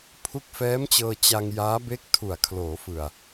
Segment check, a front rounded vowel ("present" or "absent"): absent